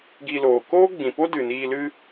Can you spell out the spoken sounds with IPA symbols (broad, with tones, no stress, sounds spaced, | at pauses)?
ɡ i˧ l oː˨ k oː˦ ɡ͡b ĩ˨ p o˦ d ɨ˨ n iː˧ l ɨ˦